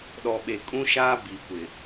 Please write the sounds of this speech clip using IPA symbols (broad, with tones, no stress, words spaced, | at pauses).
ɗɔ˨ɓe˨ kʼũ˦ʃaː˦ bi˨kʷɪ˨